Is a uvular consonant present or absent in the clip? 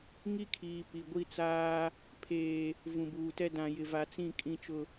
absent